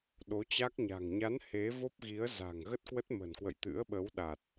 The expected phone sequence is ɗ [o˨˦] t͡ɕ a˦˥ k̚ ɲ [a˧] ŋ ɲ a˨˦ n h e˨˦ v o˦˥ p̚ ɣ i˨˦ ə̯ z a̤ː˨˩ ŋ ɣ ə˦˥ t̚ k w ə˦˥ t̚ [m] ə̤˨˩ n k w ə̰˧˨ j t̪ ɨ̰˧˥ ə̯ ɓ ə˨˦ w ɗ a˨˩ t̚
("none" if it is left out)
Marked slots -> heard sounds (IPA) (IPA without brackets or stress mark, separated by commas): o˨˦, a̤˨˩, m